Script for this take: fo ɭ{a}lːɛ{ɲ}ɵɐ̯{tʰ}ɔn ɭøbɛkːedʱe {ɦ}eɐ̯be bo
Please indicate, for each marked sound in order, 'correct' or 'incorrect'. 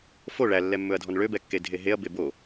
incorrect: æ, incorrect: mː, incorrect: dʱ, correct

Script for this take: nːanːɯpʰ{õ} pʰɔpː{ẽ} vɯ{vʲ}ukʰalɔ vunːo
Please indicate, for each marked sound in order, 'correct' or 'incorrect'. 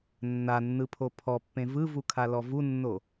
incorrect: o, correct, incorrect: v

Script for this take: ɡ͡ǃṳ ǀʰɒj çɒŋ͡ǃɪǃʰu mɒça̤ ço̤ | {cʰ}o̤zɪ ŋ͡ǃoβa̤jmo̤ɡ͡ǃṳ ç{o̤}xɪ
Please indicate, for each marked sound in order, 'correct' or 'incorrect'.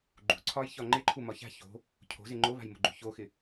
correct, incorrect: o

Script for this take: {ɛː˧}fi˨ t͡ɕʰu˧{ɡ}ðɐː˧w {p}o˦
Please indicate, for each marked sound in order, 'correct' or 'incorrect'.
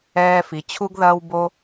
correct, correct, incorrect: b

